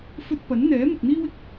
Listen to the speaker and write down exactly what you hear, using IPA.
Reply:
f ɵ˧ t̚ p ɐ˨˥ n n̪ ɛː˨˥ m ɪ˨ k̚ n̪ iː˧ w ɪ˧ k̚

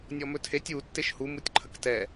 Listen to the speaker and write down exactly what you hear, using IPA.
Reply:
nʲ ɔ m ɵ tʰ e tʲ u tː e ʃ h u m u tʲ ǃʰ ə k t ɛ

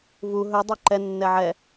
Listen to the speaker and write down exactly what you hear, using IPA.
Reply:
v u ɦ ɵ dˤ ə˞ ǃ ɛ nː ɛ ʕ ɛ

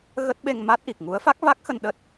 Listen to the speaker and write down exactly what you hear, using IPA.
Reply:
ɣ ə˦˥ t̚ ɓ e˧ ŋ m a˦˥ t̚ ʔ i˨˩ k̚ ŋ u˨˦ ə̯ f a˦˥ k̚ v a˦˥ k̚ x ə˧ n ɗ ə˦˥ t̚

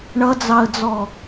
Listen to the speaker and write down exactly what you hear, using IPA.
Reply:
ɳ ʌ d͡z ɑ ə̯ d͡z ɔ

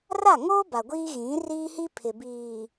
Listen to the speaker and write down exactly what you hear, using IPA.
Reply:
r a˦˨ ŋ oː˦ b a˨ ɡʷ iː˦ ɣ ĩ˨˦ r iː˦ h i˦ pʰ ɪ˨ b iː˨

